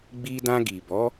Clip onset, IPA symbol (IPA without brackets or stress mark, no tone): ɡ͡b